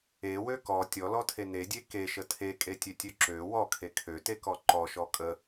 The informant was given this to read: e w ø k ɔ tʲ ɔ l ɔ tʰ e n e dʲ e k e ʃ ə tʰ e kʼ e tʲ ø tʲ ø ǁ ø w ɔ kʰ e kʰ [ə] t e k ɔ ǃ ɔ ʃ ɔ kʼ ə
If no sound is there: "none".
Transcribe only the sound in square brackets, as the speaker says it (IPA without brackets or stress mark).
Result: ø